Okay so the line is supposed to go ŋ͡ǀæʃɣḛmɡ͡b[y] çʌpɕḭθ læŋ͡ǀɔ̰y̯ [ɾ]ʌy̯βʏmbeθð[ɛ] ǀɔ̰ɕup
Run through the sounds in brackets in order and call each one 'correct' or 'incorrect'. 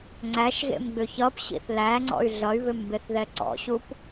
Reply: incorrect: ʏ, incorrect: ɮ, correct

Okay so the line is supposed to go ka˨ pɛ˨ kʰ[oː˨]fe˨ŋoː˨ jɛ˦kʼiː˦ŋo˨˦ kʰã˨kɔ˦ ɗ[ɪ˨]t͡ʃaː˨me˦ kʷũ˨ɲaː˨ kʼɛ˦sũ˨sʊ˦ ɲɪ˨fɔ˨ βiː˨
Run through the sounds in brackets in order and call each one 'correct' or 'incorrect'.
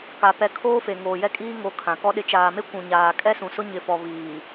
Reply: incorrect: oː˦, correct

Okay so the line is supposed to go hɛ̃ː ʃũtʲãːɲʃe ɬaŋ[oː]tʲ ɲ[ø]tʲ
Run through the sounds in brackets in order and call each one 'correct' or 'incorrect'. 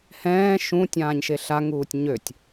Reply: incorrect: uː, correct

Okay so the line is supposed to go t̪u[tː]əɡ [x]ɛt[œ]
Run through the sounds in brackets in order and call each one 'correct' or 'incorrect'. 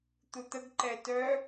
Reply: incorrect: t̪, incorrect: ǃ, correct

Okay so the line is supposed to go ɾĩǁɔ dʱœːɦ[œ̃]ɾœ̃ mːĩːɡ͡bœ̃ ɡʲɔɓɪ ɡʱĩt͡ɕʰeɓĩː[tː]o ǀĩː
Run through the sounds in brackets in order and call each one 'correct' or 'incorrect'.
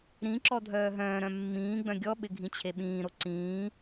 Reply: incorrect: œ̃ː, incorrect: ɾ

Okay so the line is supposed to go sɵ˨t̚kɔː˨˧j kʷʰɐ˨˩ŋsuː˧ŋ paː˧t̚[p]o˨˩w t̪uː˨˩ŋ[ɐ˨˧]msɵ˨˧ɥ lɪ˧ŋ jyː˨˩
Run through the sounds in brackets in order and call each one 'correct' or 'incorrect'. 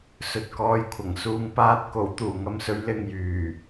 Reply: incorrect: k, correct

